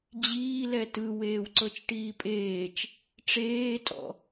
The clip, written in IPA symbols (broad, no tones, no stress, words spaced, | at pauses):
d͡ʑiːlɛ tɯ weːwǀɤt͡ʃʈiːpʼeːt͡ʃ | ʈ͡ʂeːtʼɔ̰